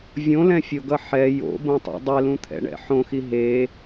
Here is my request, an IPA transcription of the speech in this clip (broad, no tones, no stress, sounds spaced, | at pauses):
vʲ õ l ɛ̃ fʲ o ɡ ʌ ħ ɛ j o̰ b õ tˤ ɛ̰ dˤ ɛ l ũ t̪ʰ ɛ̰ ɳ ɛ̰ ħ õ x i ɦ e